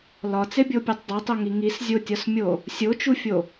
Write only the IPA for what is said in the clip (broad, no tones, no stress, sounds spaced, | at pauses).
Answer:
l ɒ t͡s e bʲ o pʲ u tˤ dˤ o tˤ o ŋ i ŋ i s zʲ o tʲ ɒ s mʲ o | sʲ o t͡ʃ u fʲ o